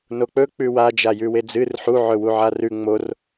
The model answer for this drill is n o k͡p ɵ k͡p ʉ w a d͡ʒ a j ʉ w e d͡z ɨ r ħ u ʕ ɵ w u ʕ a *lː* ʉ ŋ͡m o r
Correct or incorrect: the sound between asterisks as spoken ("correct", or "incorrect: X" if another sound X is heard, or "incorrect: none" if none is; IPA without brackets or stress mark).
incorrect: r